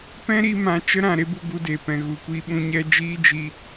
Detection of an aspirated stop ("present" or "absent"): absent